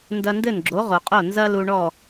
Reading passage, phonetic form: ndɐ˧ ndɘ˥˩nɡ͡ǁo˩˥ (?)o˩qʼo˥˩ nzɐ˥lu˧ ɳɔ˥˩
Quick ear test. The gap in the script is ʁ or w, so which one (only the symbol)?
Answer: ʁ